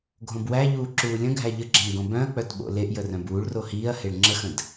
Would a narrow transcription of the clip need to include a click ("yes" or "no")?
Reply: yes